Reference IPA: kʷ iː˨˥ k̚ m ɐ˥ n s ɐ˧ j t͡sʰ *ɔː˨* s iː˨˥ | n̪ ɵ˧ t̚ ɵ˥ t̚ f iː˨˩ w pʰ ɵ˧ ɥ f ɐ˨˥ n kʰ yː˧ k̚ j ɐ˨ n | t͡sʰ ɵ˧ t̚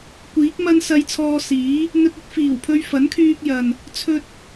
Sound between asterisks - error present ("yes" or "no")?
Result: yes